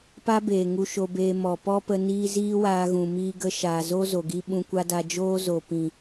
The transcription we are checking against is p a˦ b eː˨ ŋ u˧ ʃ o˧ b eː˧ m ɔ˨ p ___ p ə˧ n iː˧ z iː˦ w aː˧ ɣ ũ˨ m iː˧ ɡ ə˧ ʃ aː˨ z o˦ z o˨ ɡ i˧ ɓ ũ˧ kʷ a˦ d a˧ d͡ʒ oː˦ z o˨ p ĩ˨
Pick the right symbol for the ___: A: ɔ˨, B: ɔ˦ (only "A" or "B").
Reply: B